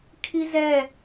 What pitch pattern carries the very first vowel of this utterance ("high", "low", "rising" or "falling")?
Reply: high